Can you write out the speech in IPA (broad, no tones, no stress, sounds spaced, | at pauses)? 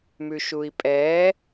m ʉ ʃ u i̯ pʼ ɛː